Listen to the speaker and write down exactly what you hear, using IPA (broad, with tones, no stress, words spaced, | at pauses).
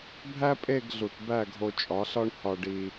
bʱæ˦pʼe˦˨ɡɮu˨t bæ˦˨ɡʱo˧t͡ʃʼɒ˨˦ɬɒ˦ɳ hɒ˧ɖi˧